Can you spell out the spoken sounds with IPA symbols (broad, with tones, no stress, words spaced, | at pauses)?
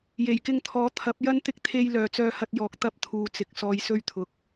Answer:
je˨˩jkɪ˧ŋt̪ʰɔː˨˥ t̪ʰɐ˨˥p̚jɐ˥n t̪ɪ˧k̚t̪ʰe˧j lœː˨t͡sœː˧hɐ˧t̚jɔː˨k̚ t̪ɐ˥p̚t̪ʰuː˨t͡sɪ˨˥k̚ sɔː˨jsɵ˧ɥt̪ʰʊ˨˥k̚